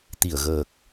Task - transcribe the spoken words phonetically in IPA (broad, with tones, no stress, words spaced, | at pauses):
t̪i˧˩ə̯ɣəː˨˩k̚